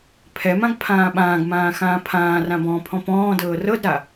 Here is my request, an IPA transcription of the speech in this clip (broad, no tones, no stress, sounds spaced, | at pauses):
pʰ ɛ m ã ɡ pʰ ãː ɓ ãː ɡ m ãː x ãː pʰ ãː r ã b ɔ̃ː pʰ ɔ̃ p ɔ̃ː d ɤː r ɤ d ɾ a